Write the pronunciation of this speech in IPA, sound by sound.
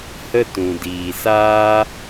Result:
h ə˦ t ũ˨ d iː˨ s aː˦

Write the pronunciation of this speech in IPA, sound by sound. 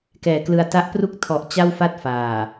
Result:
k ɛː˨˩ k l ɯ˧ a̯ t a˦˥ ʔ p r u˥˩ k̚ tʰ ɔ˨˩ ʔ t͡ɕ a˥˩ w f a˥˩ t̚ f aː˨˩

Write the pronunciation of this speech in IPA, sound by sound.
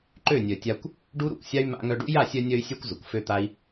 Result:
ǃ ø˦˨ nʲ œ˨ tʲ a˧ kʷ | ɖ u˦ ɾ ṵ˨ kʷ sʲ a˦ y̯ m a̰˧ ŋ œ˧ ɖ ṵ˦ j a˦˨ sʲ œ˧ nʲ œ˧ y̯ sʲ œ˧ kʷ z ʊ˨ kʷ f ø˦ t̪ a˦ i̯

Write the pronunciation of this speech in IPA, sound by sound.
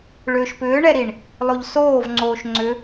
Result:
ɭ ʏː ʃ p ʏː ɳ ɛ ɾ i ɳ | lˠ o ʎ s oː v ŋ͡ǀ oː ʃ ŋ͡ǀ ʏ

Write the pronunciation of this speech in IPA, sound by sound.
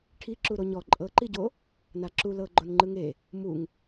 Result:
ʈʰ i ǁ u ɾ o ɲ ɔ ǃʼ ɤ ǃ i ɟ o | n a ǁ u l ɤ ɡ͡ǃ o n ŋ͡ǃ ɯ ŋ e | m u ŋ

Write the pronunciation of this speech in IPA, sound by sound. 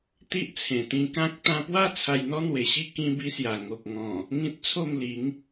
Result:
t̪ i˦ ʔ t͡sʰ ẽ˨˩ t̪ ĩ˧ k ã˦ k̚ t̪ ã˧ p w a˥˧ t͡sʰ a˧ j n̪ ɔ˦ n̪ w e˨˩ ɕ i˥˧ k ĩ˧ b i˧ s j a˨˩ ŋ o˨ k̚ ŋ ɔ̃˨˩ | ŋ ĩ˦ t̚ t͡sʰ o˥˧ m l i˨˦ ŋ

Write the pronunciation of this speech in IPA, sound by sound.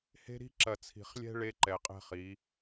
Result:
h e̤˦ ɾ i̤˦ ǁ ɐ˨ t͡sʰ i̤˨ χ lʲ ɛ̤˦ ɭ e˦ ǃ ɛ˨ qʼ ɛ̤˦ χ i˨˦

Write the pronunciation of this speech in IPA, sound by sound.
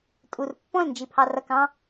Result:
tʼ u r pː ɔ̃ l n d͡ʒ i pʰ ɑ r ʌ k ɑ̃

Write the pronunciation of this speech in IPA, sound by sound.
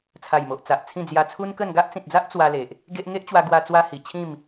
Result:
t͡sʰ a˨˩ j m o˨ ʔ t͡s a˨ ʔ t͡sʰ ĩ˥˧ d͡z j a˧ t͡sʰ u˦ n k ə˥˧ n ɡ a˦ ʔ t͡s ĩ˨ t̚ d͡z a˦ ʔ t͡s w a˧ l e˨ ʔ | ɡ e˦ ʔ ŋ e˦ ʔ t͡ɕ w a˧ ɡ w a˧ t͡s w a˦ h i˨˩ t͡ɕʰ ĩ˥˧ m

